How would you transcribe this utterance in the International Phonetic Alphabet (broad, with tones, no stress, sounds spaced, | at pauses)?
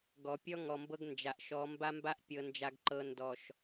ɡ ɔ˨ pʲ ɔ˦ ŋ ɔ˨ m b ɤ˦ ɡ n d͡ʒ a˨ ʔ ʃ ɔ˨˦ m b a˦ m b a˦ ʔ pʲ ɤ˨ n d͡ʒ a˨ ɡ ǃ ɤ˨ n d ɔ˨ ʃ